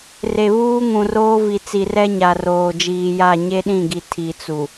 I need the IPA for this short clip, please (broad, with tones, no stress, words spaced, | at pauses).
re˨βuː˦ŋũ˨roː˦ vi˨t͡si˨rɛ˦ ɲa˨roː˨d͡ʒiː˨ja˦˨ ɲe˦ɗĩ˦˨ɡi˨ tʰi˨t͡su˨